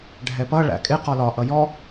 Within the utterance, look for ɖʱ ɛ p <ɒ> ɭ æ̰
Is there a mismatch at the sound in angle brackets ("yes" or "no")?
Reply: yes